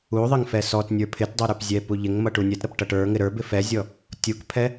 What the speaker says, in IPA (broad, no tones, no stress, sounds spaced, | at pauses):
u ðˤ ɪ ŋ f ɛ s ɔ t nʲ ə˞ pʰ ɪ t dˤ ə˞ ɾ ə˞ p zʲ ɛ p u ʎ ɪ ŋ m ʌ ʈ u nʲ ɛ t ɾ ʌ p ʈ ʌ ʈ ə˞ ŋ ɪ ɾ ə˞ b ɪ f ɛ zʲ ɔ | tʲ u k pʰ ɛ